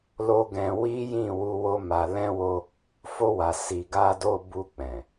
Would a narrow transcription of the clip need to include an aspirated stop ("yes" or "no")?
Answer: no